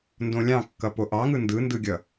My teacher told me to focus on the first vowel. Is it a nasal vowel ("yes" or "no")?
yes